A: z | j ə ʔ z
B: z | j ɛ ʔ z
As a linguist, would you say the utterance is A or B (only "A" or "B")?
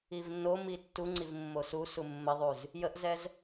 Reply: A